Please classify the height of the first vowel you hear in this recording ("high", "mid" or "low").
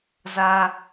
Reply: low